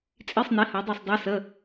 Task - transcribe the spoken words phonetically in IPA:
t͡sʼ i˧˥˧ sˤ n i˨˥ h a˨˥ dˤ e˦˨ sˤ dˤ e˦˥ s ə˧˥˧

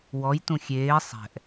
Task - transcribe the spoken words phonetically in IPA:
w ɔ j t ũ xʲ eː sˤ ɛ̤ ʔ

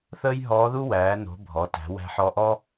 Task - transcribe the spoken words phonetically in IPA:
θ əː˥ j ɦ ɔː˧˥ ð u˥ w æː˩˧ n o̤˩˧ bʱ ɔ˩˧ t æ̤˩˧ w æ̤˧ ħ ɔ˧ ʔ ɔ˥

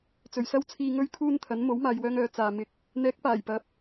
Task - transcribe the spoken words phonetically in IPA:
t͡s ɵ˨˩ ɥ s ɐ˥ w t͡sʰ iː˧ ŋ ɵ˥ ɥ kʰ uː˥ n t̪ʰ ɐ˨˥ n m o˨˥ w m aː˨ j w œː˧ ŋ œː˨˥ t͡s aː˨ m ɪ˧ k̚ | n̪ ɛː˨˥ k̚ p aː˨˩ j p ɐ˨˥ p̚

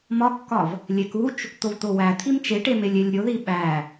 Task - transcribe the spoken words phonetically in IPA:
m ɒ kː ɒ v | lʲ e k u t͡ʃ | t̪ o v t̪ o w æ t̪ʰ i m t͡ʃ e ʈ e m e lʲ e lʲ ɾʲ o ð i ɓ æ

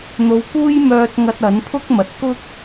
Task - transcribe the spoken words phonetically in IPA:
n̪ o˨˧ w k uː˥ j m œː˧ t̚ ŋ ɐ˧ t̚ ɐ˨˥ n pʰ ʊ˥ k̚ m ɐ˨ t̚ k ʊ˥ k̚

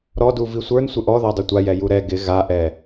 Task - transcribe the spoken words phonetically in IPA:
ɾ ɔ d u v i sʷ ə˞ n sʷ ɪ ʔ ɔ ð a dˤ u tʷ a j ɛ j u ɾ ɛ ɡ ɪ ɣ a ʔ ɛ

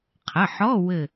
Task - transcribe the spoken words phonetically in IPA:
qʰ ə˩˧˩ ħ ɔ˧˥˧ w ɘ˧˩

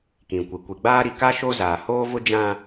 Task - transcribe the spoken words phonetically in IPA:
k ĩ˨ kʷ i˨ kʷ i˨ ɡ͡b aː˦ ɾ i˨ k a˦ ʃ o˦ z aː˨ h oː˦ v ʊ˦ d͡ʒ ã˦

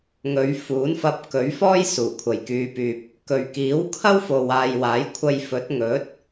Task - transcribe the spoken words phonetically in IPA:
ŋ ɵ˨˧ ɥ f uː˨˥ n f ɐ˧ p̚ k ɵ˨˥ ɥ f ɔː˥ j s uː˨˩ kʷʰ ɐ˨ j k yː˧ p yː˧ p̚ | k ɵ˨ ɥ k iː˨˥ w kʰ ɐ˥ w f o˨ w aː˨ j w aː˨˥ j kʷʰ ɐ˧ j f ɵ˨˥ t̚ ŋ ɵ˨˥ t̚

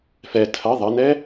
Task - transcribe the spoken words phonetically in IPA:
f ɛ tʰ ɐ ðˤ ɐ n ɛ

